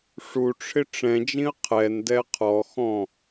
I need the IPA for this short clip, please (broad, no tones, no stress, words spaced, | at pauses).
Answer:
ʂuʈ͡ʂʰɪ ʈ͡ʂɛ̃d͡ʒĩə̯ qʰɛndɛ qʰɔxɔ̃